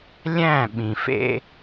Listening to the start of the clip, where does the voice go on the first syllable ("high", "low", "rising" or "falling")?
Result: falling